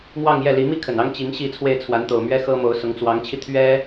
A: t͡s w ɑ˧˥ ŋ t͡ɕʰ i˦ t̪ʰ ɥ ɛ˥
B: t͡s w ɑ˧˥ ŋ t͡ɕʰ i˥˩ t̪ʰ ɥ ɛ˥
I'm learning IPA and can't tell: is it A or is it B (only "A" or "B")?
B